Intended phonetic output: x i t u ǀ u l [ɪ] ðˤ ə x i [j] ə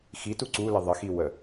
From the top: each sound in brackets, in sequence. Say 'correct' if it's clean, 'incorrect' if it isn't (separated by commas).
correct, incorrect